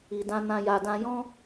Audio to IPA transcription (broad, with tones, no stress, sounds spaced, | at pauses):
i˨ d ã˧ n ã˧ j a˨ d ã˧ j ɔ̃˦